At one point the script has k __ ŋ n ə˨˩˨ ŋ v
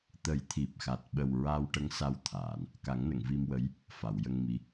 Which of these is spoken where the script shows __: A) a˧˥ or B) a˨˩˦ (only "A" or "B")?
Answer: B